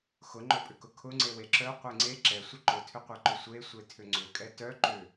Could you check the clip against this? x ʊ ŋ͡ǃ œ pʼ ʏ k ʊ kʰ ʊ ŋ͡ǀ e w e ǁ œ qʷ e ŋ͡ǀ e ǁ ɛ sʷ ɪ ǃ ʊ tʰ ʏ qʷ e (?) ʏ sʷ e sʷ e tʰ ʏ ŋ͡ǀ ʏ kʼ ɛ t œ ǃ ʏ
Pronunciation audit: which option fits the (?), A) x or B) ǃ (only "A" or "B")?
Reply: B